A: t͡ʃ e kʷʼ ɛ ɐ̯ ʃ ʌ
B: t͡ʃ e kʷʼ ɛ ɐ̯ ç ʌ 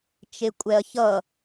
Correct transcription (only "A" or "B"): B